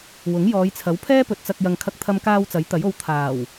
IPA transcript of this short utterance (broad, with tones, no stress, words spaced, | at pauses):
wʊ˨˥ŋjɔː˨˧jt͡sʰɐ˨˥w pʰɛː˥pɵ˨t̚t͡sɐ˧k̚ jɐ˨ŋkʰɐ˧k̚t̪ʰɐ˧mkaː˧w t͡sɐ˨˥jt̪ɐ˨˥jo˧w t̪ʰaː˨˩w